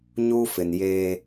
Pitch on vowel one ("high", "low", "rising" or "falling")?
high